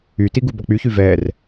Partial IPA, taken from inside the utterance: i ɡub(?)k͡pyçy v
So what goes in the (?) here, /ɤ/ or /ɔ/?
ɔ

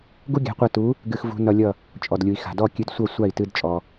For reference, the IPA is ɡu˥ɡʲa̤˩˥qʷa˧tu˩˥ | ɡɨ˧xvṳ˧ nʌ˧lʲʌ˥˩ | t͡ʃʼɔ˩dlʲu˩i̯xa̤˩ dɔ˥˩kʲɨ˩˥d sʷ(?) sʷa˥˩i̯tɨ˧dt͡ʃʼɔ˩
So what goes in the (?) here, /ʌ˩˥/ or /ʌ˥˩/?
ʌ˥˩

